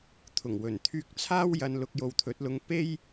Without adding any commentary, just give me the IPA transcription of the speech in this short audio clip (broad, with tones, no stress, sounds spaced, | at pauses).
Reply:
t̪ʰ ʊ˨˩ ŋ w ɵ˨˩ n t̪ʰ yː˧ k̚ t͡sʰ aː˥ w j ɐ˧ n l ʊ˧ k̚ j o˨ w t̪ʰ ɵ˨˥ t̚ l ʊ˧ ŋ p e˥ j